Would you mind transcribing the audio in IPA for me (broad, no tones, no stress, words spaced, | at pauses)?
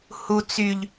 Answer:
hu t͡syʎ